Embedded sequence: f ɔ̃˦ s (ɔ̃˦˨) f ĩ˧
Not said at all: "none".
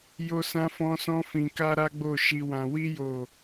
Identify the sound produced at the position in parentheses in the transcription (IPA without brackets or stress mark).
ɔ̃˦